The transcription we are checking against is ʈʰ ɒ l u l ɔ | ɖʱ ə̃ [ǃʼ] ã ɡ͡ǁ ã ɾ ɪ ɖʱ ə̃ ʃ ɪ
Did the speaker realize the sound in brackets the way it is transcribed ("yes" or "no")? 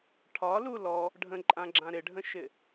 yes